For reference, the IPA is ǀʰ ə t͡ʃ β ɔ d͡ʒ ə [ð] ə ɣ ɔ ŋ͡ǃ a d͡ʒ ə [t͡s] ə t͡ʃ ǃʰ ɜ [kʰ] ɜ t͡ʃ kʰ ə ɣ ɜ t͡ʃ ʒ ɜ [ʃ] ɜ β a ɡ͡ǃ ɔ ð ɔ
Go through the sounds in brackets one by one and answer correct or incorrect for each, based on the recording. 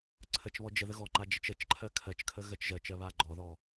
correct, incorrect: t͡ʃ, correct, incorrect: t͡ʃ

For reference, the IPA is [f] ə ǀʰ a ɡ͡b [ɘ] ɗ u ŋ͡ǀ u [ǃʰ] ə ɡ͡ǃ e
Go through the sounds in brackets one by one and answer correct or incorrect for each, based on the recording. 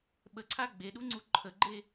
incorrect: ɓ, incorrect: e, correct

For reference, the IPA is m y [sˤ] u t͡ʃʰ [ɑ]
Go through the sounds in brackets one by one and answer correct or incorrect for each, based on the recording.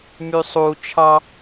correct, correct

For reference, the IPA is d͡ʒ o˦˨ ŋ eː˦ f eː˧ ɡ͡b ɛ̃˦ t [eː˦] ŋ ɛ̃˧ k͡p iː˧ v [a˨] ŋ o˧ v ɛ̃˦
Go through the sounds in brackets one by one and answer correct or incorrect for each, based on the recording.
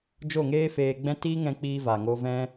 incorrect: iː˦, correct

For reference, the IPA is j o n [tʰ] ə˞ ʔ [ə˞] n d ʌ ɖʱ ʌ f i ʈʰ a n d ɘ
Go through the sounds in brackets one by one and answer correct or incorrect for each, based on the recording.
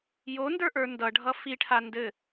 incorrect: d, correct

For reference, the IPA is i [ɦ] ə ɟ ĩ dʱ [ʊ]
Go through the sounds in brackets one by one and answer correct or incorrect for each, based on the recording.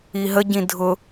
correct, correct

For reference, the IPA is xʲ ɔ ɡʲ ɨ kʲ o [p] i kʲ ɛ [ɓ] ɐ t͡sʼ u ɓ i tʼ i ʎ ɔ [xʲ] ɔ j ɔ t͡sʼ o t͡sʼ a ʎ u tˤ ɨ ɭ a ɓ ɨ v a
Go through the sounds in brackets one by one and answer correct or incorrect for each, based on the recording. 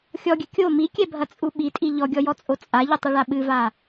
incorrect: m, incorrect: bʱ, incorrect: ɡʲ

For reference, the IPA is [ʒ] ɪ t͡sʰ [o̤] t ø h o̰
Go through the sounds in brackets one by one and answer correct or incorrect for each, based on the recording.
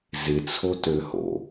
incorrect: z, incorrect: o

